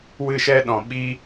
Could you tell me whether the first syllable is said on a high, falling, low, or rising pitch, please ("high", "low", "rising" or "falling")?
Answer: falling